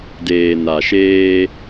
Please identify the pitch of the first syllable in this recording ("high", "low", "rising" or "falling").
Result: low